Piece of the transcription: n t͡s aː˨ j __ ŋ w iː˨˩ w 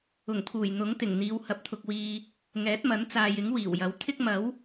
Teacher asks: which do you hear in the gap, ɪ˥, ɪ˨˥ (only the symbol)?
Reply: ɪ˨˥